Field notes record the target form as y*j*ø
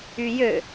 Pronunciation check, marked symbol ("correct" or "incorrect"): correct